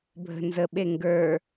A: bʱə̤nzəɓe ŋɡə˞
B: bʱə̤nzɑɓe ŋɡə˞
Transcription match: A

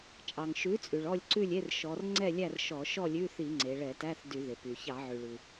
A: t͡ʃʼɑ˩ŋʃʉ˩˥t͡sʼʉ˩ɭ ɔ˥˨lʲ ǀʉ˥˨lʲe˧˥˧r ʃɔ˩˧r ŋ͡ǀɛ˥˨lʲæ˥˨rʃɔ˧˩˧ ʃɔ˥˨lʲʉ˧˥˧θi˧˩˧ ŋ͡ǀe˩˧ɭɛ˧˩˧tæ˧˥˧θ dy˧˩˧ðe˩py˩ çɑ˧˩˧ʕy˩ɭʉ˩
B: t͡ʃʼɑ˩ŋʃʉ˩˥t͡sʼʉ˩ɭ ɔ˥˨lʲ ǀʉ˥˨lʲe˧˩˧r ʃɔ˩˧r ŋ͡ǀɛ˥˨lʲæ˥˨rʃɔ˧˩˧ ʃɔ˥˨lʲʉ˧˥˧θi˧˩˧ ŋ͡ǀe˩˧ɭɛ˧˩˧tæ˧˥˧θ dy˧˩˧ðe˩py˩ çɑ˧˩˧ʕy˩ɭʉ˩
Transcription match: A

